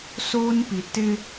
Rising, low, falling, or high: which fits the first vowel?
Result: high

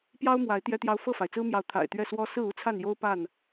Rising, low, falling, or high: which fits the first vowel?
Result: high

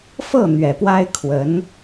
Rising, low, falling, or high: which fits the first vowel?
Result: falling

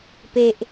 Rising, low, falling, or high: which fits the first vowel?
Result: low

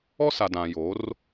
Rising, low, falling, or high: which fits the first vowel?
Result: high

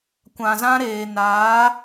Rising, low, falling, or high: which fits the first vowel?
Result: low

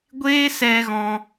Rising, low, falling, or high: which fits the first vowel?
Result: high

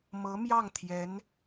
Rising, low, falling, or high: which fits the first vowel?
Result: rising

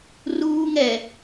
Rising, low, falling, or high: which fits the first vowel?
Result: high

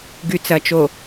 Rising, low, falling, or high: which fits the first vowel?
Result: low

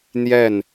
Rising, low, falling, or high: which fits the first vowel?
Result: falling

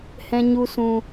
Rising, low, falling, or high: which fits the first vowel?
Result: low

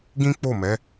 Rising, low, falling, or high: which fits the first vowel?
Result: high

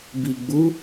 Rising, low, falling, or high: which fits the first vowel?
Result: low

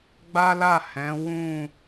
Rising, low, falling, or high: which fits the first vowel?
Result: high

